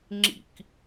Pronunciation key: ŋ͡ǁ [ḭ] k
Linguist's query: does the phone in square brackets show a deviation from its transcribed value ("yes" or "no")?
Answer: no